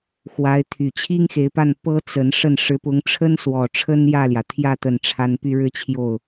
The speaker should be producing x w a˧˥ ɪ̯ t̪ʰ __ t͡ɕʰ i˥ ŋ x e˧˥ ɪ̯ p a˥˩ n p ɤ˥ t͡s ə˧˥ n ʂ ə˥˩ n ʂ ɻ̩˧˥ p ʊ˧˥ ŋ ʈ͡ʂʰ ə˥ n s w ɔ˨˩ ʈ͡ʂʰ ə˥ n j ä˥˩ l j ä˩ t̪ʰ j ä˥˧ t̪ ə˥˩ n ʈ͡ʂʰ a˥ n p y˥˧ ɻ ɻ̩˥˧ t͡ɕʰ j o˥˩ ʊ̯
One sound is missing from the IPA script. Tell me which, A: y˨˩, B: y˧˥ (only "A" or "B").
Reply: A